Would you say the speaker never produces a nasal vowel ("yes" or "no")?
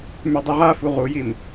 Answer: yes